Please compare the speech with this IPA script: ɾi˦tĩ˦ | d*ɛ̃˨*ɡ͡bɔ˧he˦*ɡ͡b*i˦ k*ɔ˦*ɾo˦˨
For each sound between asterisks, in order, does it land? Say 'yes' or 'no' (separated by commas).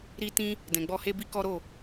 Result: yes, no, yes